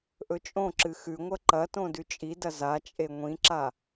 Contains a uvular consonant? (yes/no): no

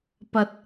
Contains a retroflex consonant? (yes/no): no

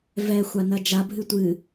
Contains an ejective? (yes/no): no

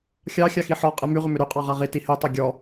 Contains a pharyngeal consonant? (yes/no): yes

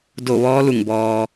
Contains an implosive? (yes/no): no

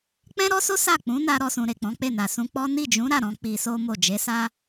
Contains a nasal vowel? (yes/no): yes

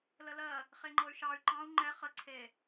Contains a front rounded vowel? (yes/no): yes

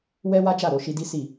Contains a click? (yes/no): no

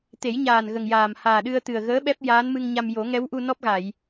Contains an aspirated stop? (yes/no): no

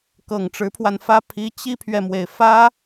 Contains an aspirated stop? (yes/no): yes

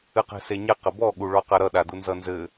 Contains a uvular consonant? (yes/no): yes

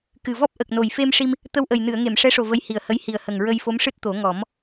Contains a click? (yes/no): no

